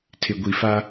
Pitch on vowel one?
low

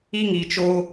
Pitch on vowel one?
high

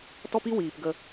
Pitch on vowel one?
high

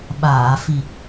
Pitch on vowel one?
low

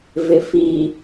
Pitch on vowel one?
low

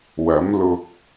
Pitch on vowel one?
rising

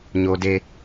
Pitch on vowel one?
high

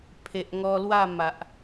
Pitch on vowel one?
low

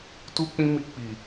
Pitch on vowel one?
high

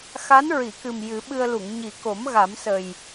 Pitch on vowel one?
rising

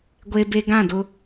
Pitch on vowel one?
high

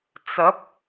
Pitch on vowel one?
rising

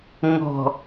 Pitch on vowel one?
low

